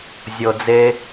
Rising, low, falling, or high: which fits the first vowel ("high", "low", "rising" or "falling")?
low